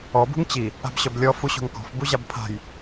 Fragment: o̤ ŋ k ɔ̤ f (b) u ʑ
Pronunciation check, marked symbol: correct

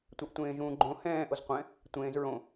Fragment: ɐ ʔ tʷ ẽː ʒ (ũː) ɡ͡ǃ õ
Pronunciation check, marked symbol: correct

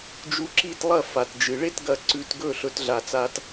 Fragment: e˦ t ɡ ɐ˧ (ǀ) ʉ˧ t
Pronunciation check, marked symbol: correct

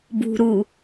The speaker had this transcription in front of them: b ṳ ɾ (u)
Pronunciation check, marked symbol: correct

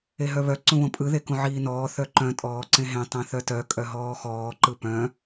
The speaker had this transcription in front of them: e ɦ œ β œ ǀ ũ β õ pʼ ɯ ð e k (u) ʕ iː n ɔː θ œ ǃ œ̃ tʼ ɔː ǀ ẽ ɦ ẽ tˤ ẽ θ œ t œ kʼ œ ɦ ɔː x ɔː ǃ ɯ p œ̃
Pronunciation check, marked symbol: incorrect: ũ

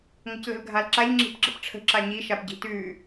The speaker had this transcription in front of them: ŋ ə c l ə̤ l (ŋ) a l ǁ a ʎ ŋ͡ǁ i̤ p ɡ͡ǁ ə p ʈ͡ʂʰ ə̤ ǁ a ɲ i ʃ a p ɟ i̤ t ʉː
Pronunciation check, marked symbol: incorrect: ɡʱ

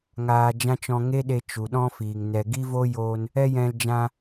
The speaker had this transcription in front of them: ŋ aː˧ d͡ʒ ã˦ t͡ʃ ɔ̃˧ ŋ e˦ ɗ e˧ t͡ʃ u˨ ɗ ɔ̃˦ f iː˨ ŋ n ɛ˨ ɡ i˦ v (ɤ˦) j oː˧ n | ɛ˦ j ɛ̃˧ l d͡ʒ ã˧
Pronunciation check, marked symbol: incorrect: o˦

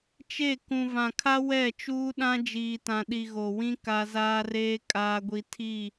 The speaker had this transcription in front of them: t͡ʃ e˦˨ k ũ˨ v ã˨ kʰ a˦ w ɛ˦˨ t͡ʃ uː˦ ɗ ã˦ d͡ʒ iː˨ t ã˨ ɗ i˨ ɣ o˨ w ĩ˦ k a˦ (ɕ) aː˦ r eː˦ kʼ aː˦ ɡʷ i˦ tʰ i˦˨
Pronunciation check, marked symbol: incorrect: z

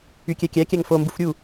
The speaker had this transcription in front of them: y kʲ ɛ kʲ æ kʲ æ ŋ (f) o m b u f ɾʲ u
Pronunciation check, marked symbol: correct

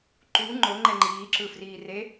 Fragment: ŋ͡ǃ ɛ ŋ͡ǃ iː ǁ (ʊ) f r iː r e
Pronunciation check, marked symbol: incorrect: ɯ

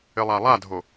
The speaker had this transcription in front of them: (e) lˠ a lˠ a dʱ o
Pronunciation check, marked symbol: incorrect: ɘ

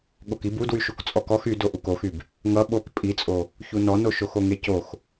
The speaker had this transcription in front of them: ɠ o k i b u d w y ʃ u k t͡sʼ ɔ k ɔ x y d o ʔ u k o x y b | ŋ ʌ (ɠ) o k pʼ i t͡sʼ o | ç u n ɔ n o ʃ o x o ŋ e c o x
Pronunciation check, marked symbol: incorrect: ɓ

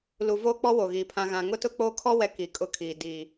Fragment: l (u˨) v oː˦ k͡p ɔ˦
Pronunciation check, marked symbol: correct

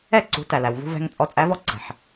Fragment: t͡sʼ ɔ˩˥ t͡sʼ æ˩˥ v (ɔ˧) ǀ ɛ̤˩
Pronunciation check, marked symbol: correct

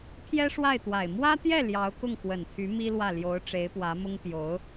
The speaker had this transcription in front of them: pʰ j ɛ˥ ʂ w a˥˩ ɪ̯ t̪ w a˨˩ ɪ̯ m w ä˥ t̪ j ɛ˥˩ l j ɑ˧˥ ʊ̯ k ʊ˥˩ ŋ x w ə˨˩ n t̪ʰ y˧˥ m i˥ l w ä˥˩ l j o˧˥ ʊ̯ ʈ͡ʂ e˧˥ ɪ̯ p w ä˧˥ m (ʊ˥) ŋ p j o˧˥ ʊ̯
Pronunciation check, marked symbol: correct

